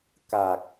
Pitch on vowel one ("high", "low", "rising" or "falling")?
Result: low